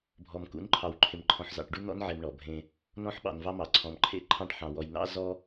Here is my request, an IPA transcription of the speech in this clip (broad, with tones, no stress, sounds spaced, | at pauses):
bʱ ɔ˨ m k ṵ˨˦ n ǃʰ ɑ˨ w ǃʰ ɪ˨ m ǃʰ ɔ̃˨ ħ z ɑ̰˨ ʈ ɖ u˦ n̪ ɔ̰˦ n ʕ e˨ m ɳ ɔ˨ bʱ ẽ˦ | n ɔ̃˦ ħ ɓ ɑ̰˨ n v ɑ˦ m ɑ˨ ǀʰ ɔ̃˨ m ǃʰ ḛ˦ ǃʰ ɑ̃˦ ʈ ħ ɑ̃˨ w ɔ˨ j n̪ ɑ̰˦ z ɔ˦